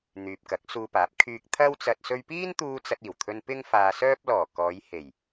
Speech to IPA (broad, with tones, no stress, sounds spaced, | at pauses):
n̪ yː˨ p̚ k ɐ˨˥ k̚ s uː˧ p aː˨˥ p̚ kʰ yː˧ k̚ t̪ʰ ɐ˥ w t͡s ɐ˧ t̚ s ɵ˧ ɥ p iː˥ n t̪ uː˧ t͡s ɐ˧ t̚ iː˨˩ w t̪ʰ ɵ˧ n p ɪ˥ ŋ f aː˧ s œː˥ p̚ l ɔː˨˩ k ɔː˨˧ j h e˨˩ j